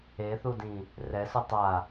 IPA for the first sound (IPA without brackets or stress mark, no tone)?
e